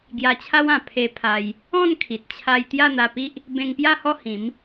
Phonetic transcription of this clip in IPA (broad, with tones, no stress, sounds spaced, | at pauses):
ɡ j a˧ t͡ɕʰ a˦ w ã˨˩ pʰ e˧ pʰ a˧ j | ɔ̃˥˧ n kʰ i˨ t̚ t͡ɕʰ a˧ j t̪ j a˥˧ n̪ a˧ p i˦ ʔ | b ẽ˧ ŋ p j a˥˧ h ɔ˥˧ h ĩ˨˦ m